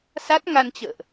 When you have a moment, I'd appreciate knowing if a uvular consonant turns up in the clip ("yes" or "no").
no